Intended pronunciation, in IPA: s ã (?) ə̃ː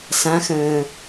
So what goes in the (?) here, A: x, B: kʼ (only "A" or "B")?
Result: A